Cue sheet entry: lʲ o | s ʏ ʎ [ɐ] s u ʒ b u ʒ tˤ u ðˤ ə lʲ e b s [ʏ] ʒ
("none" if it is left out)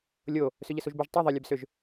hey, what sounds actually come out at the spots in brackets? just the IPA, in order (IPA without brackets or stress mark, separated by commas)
ə, ʏ